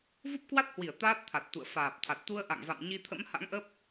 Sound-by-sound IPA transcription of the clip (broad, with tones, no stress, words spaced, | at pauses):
vu˦˥p̚kwa˦˥t̚hwi˧˩ə̯ t̪aː˦˥t̚t̪ʰa˨˩t̚ t̪ṵ˧˨ə̯ faː˨˩p̚t̪ʰa˨˩t̚t̪u˧ə̯ ʔa̰˧˨ŋva̰˧˨m ɲi˧t̪ʰə̰˧˥mha̰˧˥ŋʔə˦˥p̚